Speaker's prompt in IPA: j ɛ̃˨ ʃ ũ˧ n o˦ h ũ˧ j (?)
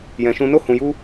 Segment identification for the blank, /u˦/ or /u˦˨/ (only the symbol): u˦